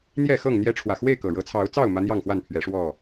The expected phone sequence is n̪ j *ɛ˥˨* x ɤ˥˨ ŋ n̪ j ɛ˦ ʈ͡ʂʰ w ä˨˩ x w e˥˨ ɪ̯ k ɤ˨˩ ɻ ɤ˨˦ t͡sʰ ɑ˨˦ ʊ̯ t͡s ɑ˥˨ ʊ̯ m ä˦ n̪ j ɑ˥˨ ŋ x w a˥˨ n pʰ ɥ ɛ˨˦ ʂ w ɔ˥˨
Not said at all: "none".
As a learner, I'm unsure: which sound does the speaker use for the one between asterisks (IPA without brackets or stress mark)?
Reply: ɛ˥˨